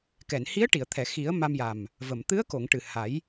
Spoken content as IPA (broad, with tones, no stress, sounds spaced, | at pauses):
k ɛ˨˩˨ n h i˧˥ ə̯ ʈ i˨˩˨ ə̯ t̪ʰ ɛ˨˩˨ x i˨˩˦ ə̯ m a˧ m j a˨˩ m | v ə˨˩˨ m t̪ ɨ˧˥ ə̯ k o˨˩˨ ŋ ʈ ɨ˨˩ h a˨˩˦ j